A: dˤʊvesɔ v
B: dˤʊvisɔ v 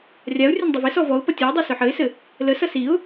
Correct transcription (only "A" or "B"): A